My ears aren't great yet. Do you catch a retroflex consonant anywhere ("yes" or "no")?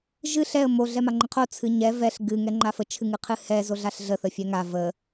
no